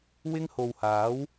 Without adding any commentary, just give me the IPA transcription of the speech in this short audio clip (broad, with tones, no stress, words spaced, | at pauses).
wɪ˥ŋ ho˨whaː˨˥w